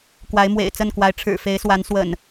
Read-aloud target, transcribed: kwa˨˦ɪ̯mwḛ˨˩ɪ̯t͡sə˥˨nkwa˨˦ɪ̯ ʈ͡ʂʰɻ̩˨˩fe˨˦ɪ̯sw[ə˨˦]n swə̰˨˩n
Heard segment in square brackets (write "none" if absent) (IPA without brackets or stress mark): a˨˦